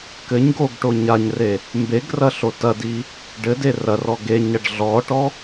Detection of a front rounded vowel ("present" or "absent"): absent